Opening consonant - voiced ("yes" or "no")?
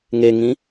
yes